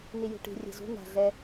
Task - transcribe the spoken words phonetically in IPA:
n i j ṳ ʈ i̤ rʲ ɛ̤ z ṳ n a̤ ɮ ɛ

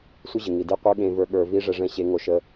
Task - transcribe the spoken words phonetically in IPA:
sʷ ɨ˦ ʑ ɯ˨ ŋ i˨ d i˦ qʷ ə˞˦ ɠ ẽ˧ v ə˞˧ ɠ ə˞˧ v i˦ ʐ ɛ˧ ʐ ɛ̃˦˨ ɕ e˧ ŋ o˧ ʃ ə˧

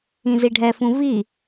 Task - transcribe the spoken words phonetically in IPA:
ĩ z i ɖʱ ɛ f ũ v i

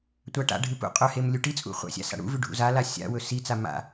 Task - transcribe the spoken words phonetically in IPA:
tʷ a ʈ a̰ ɖʱ ɨ p ṵ qʼ ɵ h e m lʲ u ʈ i t͡sʼ ṵ χʷ a̰ sʲ a̰ s a̰ ɽ ṵ v ʉ ɖʱ ṵ z a l a sʲ a̰ w ɵ s i t͡s a m a̰

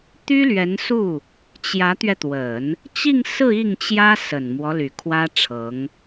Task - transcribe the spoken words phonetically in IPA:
t̪ y˥ l ɥ ɛ˧˥ n s u˥˩ | t͡ɕ j ä˧˥ t̪ ɥ ɛ˧ t̪ w ə˨˩˦ n | t͡ɕ i˥˧ ŋ s ɹ̩˥˧ i˥˩ ŋ t͡ɕ j ä˥ s ə˨˩ n m w ɔ˦ l y˨˩ kʰ w ä˥ ʈ͡ʂʰ ɤ˧˥ ŋ

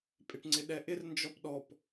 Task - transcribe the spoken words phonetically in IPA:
pʼ ɪ ʈ ŋ͡ǀ ɪ ɗ ɛ ʔ ɪ r n d͡ʒ ɔ p ɗ ɔ p

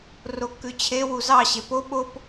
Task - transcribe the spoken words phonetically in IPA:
r o kː ʉ t͡ɕʰ e w u z ɑ ɕ e p o ɓ o p

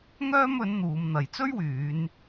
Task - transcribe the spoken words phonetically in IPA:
ŋ œː˥ m ɵ˨˥ n n̪ uː˨˧ m n̪ ɐ˨ j t͡s ɵ˥ ɥ w yː˨˧ n

